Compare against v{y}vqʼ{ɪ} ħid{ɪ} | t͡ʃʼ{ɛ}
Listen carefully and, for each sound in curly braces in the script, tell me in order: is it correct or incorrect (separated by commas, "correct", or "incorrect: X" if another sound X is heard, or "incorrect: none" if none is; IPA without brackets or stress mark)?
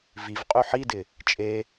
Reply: incorrect: i, incorrect: y, correct, incorrect: e